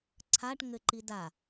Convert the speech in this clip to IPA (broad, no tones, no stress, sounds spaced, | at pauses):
ǀʰ a ʈ ŋ ɘ ǃ i d a